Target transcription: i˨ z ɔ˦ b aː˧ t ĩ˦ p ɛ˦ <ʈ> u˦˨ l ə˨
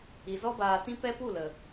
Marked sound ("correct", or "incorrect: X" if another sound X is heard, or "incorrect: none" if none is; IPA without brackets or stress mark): incorrect: p